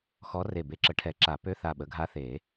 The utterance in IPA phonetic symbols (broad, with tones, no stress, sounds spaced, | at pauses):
x ɔ˧˥ r e˧˩ b e˧˥ ǁ ə˨˩˦ ʈʰ ɛ˨˩˦ ǁ a˨˩˦ p ø˧˥˧ θ a˧˩ ɓ ə˩˥ ɡʱ a˧˥ θ e˨˩˦